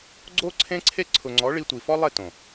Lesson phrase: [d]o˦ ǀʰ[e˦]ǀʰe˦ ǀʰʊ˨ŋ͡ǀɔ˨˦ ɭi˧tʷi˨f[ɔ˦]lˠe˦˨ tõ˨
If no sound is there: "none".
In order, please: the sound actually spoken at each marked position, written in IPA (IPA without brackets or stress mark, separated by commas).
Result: ɡ͡ǀ, ẽ˦, ɔ˦